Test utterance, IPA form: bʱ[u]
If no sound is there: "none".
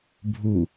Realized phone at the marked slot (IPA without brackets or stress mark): u